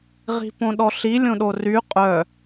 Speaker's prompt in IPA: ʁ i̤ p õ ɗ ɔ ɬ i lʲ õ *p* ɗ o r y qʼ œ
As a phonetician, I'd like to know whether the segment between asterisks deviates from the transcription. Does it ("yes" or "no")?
yes